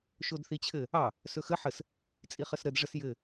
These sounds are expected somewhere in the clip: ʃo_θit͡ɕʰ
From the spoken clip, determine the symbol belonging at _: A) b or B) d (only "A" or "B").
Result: B